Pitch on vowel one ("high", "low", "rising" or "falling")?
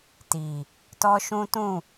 low